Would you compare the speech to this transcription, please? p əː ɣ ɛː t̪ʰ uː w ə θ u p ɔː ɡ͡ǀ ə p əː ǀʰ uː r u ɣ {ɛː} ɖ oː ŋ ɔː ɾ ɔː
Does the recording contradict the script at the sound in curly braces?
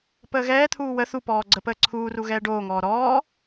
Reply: no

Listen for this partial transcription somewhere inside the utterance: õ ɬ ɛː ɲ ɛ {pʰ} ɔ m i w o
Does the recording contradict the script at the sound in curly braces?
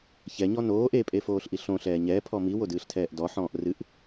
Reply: no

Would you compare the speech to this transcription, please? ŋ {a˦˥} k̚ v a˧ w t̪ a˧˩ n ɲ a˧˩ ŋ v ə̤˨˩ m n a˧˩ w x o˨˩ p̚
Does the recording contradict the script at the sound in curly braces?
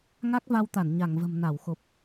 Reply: no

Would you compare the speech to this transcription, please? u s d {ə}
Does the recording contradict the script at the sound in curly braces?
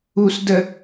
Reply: no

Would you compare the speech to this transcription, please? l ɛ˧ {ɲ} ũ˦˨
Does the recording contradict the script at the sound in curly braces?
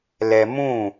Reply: yes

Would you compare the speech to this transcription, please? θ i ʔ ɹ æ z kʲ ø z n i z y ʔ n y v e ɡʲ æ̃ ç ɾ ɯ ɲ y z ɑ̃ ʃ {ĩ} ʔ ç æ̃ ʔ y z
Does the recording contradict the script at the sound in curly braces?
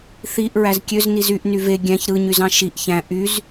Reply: yes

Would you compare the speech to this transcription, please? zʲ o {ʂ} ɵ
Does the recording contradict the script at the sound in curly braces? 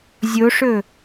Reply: no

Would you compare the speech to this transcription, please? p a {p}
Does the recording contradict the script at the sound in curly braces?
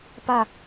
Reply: yes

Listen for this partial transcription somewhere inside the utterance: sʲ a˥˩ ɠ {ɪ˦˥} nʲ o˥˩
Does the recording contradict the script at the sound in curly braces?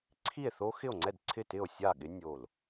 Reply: no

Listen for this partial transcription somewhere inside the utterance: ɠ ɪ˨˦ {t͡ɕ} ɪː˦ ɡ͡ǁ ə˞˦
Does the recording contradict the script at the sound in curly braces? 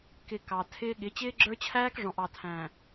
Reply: no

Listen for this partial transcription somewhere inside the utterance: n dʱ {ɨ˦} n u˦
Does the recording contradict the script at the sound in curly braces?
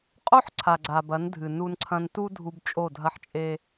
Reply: yes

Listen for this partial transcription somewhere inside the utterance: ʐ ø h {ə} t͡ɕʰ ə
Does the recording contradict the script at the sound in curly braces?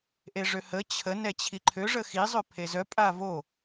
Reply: no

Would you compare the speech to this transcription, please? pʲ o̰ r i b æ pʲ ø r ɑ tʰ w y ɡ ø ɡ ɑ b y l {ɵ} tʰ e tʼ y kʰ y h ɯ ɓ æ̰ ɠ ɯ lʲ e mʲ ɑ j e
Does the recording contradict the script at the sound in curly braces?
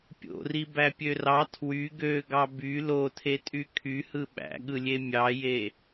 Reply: yes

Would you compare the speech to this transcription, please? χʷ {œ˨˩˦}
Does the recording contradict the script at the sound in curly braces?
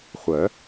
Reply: no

